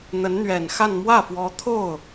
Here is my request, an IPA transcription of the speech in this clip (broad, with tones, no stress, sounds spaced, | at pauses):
n̪ ə˧˥ n n̪ ɥ ɛ˨˩ n x a˥˧ n m w ä˥˩ f w ɔ˧˥ t̪ʰ o˥˩ ʊ̯